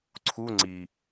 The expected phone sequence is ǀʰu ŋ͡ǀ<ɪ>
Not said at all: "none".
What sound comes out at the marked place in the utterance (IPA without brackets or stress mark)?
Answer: i